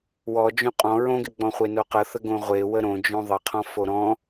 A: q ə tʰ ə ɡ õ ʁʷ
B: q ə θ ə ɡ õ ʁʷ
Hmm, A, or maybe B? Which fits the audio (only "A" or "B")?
B